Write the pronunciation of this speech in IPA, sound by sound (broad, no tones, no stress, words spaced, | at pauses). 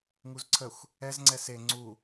ŋuzǀʰəxʷ | ɛz ŋ͡ǀɛse ŋ͡ǀu